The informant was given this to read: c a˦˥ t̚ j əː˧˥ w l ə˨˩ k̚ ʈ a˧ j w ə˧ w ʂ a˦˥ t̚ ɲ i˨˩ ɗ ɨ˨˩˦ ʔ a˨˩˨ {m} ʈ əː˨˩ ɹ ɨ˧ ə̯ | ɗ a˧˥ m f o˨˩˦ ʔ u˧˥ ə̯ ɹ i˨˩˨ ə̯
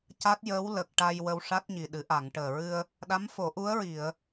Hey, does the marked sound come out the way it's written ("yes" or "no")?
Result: no